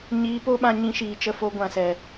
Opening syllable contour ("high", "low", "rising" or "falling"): rising